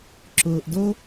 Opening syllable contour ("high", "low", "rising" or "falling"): low